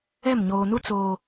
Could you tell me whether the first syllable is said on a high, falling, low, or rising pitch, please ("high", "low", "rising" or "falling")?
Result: falling